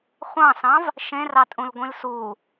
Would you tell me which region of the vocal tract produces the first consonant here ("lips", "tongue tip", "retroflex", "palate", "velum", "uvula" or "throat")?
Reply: uvula